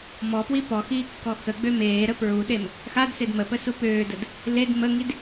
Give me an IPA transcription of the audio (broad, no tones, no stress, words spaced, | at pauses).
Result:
mɔpwi pɔxiːkːɔ xəɡ͡bø meːɾə pɹuɗem | xadsed məpəsu pøːdəd | led məŋid